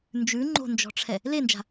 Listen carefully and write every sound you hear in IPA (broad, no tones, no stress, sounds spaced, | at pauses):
n d͡ʒ ʉ ŋ͡ǃ o̤ n d͡ʒ ɔ̤ ʈ͡ʂʰ ɛ | l e n d͡ʒ a̤